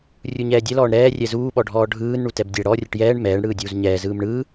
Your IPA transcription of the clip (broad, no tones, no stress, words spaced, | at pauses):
rʲuɲɛːdʲɛl ɔːɳɾɛː rʲɛzuː ɓɔɖʱɔːɖʱɯːn ɳutɛbdʲɛ ɽɔ rʲɯʈjɛːɳ mɛːɳ ɽɯːdʲuːzɲɛː zɯːmɳɯː